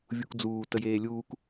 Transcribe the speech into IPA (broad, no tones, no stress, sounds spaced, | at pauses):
vʲ u k d͡z uː t ə j eː lʲ uː k